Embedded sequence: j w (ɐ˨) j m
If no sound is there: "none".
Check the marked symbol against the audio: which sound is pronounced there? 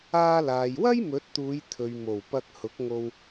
ɐ˥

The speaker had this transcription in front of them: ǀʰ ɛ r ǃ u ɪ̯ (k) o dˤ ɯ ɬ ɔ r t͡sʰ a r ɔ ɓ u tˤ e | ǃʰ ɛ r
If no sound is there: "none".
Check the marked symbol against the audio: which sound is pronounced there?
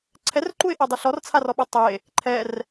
ʔ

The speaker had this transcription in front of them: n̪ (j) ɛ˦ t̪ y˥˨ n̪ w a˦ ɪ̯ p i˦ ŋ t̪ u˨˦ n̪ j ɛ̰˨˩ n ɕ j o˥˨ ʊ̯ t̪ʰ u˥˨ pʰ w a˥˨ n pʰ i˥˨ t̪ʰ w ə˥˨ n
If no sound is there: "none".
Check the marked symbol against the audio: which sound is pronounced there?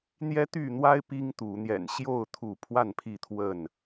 j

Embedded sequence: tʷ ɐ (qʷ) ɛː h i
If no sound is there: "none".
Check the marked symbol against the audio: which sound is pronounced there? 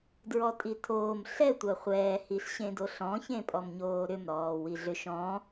χʷ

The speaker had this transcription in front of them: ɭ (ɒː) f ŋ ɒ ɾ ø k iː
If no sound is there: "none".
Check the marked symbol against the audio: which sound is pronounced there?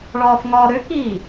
ɒː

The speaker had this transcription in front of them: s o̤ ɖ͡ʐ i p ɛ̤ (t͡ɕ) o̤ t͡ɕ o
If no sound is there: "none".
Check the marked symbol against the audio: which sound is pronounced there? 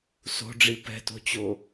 t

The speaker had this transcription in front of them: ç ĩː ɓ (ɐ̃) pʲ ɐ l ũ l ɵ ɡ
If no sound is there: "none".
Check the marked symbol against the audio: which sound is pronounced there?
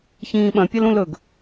ɐ̃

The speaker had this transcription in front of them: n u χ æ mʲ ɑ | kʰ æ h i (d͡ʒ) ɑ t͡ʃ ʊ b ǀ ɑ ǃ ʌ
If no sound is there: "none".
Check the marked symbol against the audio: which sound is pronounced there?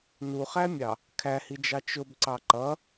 d͡ʒ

